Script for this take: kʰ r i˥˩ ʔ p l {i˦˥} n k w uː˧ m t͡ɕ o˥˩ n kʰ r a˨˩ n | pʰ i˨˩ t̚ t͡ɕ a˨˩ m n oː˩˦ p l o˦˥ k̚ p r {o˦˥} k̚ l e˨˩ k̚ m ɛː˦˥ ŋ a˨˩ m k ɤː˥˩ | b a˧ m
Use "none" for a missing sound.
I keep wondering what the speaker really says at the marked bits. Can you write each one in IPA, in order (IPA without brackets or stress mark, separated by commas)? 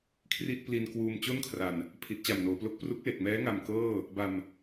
i˧, u˦˥